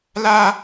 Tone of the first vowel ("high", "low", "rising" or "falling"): high